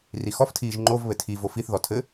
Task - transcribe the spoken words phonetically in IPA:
rixɔftʰiːʒ ŋ͡ǃovβɘ tʰi vofiθðɔ tʰɘ

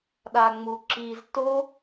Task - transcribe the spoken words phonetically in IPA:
ɗaŋ͡muǁiz to

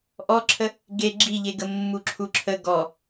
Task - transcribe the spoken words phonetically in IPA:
ʔɔǁʰə | ɡe ɡ͡ǁiʎeɡə mːuǁʰuǁʰə ɡɔ

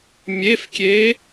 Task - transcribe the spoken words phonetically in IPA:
mʲefkʲe

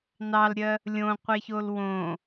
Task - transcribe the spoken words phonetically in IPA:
nɑlɾʲɜ | lʲõqʷe çolwõ

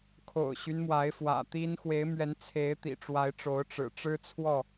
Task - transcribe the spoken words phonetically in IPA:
kʰo̰˨˩ʊ̯ɕy˦n mwa˨˦ɪ̯fwä̰˨˩t̪i˦n xwe˨˦ɪ̯mɥɛ˨˦nt͡sʰe˨˦ɪ̯ t̪ḭ˨˩ʈ͡ʂwa˨˦ɪ̯ʈ͡ʂo˨˦ʊ̯ ʈ͡ʂɻ̩˨˩ ʈ͡ʂɻ̩˦t͡sʰwɔ˥˨

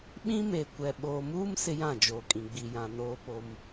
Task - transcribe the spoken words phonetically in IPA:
ɓĩ˦me˨ kʷɛ˨ ɓoː˨muː˦m sɪ˦jã˦˨d͡ʒoː˨kʼĩ˨ ɡ͡bi˨jã˨ noː˦po˦m

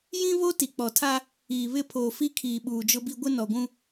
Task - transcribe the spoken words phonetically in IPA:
jĩ˦βo˦ ti˨k͡pɔ˨tʰa˦ | iː˨ βɪ˦˨ pʰoː˨ fi˦kʰiː˨ ɓuː˨d͡ʒʊ˦bi˦ ɡʷɪ˦nɔ˨ɡʷũ˦

